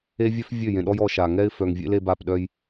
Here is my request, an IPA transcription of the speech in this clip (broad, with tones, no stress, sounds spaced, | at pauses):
e˦ vʲ œ˦ f vʲ ø˦˨ j ẽ˨ ɗ ɔ˦ j ɔ˦ ʃ a˨ ŋ ɛ˦ ɪ̯ f œ˨ ŋ vʲ ḛ˦ l e˦ b a˦˨ p ɗ œ˦ j